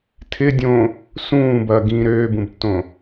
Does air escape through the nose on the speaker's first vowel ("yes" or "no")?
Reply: no